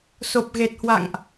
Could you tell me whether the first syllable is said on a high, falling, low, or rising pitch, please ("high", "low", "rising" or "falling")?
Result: low